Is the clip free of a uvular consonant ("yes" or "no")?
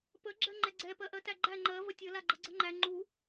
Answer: yes